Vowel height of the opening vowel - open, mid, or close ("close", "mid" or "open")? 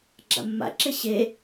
open